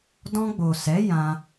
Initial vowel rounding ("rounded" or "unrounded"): rounded